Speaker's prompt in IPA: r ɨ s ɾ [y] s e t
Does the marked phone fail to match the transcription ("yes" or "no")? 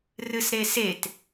yes